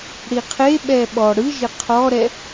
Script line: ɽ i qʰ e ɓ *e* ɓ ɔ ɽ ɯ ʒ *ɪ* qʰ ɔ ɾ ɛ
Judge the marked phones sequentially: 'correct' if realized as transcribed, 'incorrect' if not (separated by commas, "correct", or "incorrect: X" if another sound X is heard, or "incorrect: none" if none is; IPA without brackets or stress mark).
incorrect: ɛ, correct